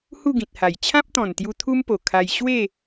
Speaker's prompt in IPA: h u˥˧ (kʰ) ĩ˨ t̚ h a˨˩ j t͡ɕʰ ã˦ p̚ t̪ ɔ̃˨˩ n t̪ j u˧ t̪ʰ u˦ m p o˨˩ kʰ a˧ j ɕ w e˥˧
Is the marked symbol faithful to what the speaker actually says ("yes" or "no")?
no